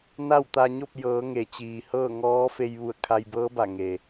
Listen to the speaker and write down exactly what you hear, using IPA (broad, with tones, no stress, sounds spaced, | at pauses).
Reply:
n a˥˨ w t̪ a˧ ɲ o˥˨ p̚ j ɤː˩˧ ŋ e˩ t͡ɕ iː˩ h ɤː˥˨ ŋ ɔː˧˥ f e˧ j ʋ u˧˩ ə̯ kʰ a˧ j b ɤː˧˥ b a˧˩ ŋ e˩